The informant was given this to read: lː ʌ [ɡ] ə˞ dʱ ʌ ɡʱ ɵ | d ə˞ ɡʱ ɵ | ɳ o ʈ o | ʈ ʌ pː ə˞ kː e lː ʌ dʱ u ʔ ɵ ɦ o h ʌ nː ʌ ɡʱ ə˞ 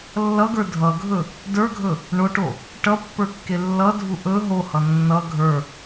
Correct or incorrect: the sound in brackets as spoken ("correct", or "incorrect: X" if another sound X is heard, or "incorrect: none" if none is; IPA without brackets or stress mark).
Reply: correct